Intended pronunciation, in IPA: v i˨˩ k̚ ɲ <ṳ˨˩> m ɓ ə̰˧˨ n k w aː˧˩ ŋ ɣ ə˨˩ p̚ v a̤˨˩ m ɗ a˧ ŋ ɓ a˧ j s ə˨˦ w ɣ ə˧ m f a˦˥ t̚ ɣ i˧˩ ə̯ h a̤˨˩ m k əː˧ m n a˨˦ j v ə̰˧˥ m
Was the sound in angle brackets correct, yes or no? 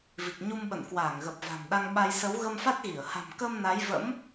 no